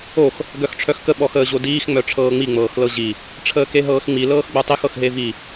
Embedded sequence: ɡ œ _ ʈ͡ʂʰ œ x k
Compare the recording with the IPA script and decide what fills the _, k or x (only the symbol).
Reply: x